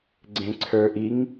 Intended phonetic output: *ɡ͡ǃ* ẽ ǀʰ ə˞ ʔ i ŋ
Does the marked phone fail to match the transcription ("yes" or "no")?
yes